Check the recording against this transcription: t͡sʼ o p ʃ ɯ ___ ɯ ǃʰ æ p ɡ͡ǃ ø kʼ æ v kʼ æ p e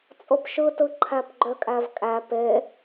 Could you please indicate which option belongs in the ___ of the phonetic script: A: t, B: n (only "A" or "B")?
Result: A